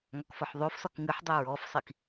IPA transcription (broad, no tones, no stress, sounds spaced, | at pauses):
ŋ ɒ k f ɒ ħ ðˤ o f s ɒ k ŋ ɨ ħ dˤ ɨ ɹ ɔ f sˤ i k